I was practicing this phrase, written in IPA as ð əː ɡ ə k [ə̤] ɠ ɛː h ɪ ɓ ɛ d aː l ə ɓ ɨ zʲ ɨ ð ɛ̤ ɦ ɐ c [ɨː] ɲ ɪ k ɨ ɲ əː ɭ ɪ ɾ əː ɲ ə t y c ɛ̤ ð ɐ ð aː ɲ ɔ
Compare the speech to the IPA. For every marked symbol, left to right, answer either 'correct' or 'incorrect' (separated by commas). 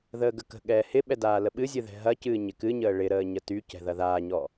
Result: correct, correct